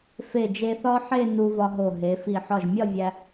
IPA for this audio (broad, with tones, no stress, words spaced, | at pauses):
fe˧˩d͡ʒe˧θɒ˥ ħe˥˧ nu˧vɒ˧ɦo˧˩ ɦe˩˧fi˧˩ ħɒ˧˩ʒmʲɒ˥˧vʲæ˧